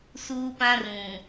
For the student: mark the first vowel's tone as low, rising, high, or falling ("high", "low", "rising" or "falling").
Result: high